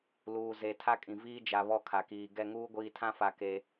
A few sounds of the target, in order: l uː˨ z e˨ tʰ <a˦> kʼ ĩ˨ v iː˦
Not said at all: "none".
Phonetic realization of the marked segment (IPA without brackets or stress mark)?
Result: a˦